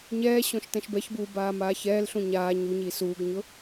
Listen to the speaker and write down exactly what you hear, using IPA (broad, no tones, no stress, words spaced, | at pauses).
ɲɛːɕõʃ tɛ̃ʃbɛçbuː baːmaːçɛːlɬũ ɲaː ɲuɲi suːɡɲʊ